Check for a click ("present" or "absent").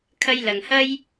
absent